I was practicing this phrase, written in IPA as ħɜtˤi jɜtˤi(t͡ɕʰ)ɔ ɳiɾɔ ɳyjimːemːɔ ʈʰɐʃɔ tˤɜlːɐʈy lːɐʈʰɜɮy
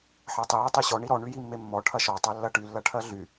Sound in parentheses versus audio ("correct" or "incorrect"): incorrect